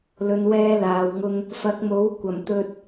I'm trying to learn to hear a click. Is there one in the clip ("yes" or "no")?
no